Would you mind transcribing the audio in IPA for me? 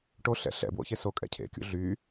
ʈoɬɛ̰ ɬɛ̰bwo̰ çesokʼɛ̰ cʰḛkʲṵ ɮy

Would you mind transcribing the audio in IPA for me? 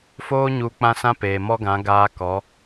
foː˦ɲu˧ k͡pã˦sã˦peː˨ mɔ˦ɡã˨˦ ɡaː˧ kɔ˨˦

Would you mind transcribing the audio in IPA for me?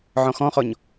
ʕɔ̃xɔ̃χɔɲ

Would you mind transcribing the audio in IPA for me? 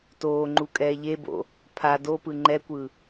toːŋ͡ǃukʼɛː ʎebo̰ | pʰa dopɯ ŋ͡ǃɛkʷɯ

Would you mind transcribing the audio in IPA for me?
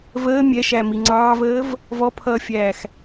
vəː mʲɛʃæmi ŋ͡ǀɑːvəːv | vɔpʰʌːfʲæːx

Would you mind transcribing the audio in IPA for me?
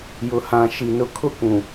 jʊ˨hã˨ ʃi˨ nʊ˨kʰʊ˦kʷũ˨

